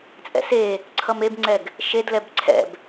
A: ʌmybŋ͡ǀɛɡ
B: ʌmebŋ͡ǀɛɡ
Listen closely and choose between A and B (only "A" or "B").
B